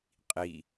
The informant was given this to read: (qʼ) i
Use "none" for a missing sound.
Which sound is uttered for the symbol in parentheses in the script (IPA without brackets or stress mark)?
qʼ